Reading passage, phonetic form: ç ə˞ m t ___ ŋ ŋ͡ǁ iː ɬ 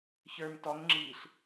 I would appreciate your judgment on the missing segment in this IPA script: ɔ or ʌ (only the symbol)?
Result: ɔ